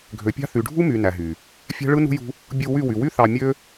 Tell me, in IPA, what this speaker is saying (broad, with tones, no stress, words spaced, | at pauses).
ɡʱø˨˦pʲɑ̤˦ θy˨ɖʱu˦my˨ næ˨ɦy˨ | fʲæ̤˦ɭɯ˦nṳ˦jṳ˦ | bʲu˧ wy˦˨wy˨ wy˦ θɑ˧ mʲø˦